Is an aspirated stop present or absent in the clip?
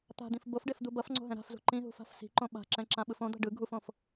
absent